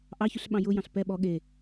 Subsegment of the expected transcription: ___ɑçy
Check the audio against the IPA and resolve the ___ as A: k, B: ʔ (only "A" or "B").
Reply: B